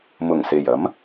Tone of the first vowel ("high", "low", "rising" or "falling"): low